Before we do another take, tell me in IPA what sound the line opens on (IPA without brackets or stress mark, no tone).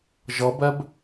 ʒ